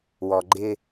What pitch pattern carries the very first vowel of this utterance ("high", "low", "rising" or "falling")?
low